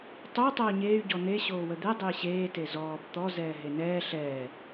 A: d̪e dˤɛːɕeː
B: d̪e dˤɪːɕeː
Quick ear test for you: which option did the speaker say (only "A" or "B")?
B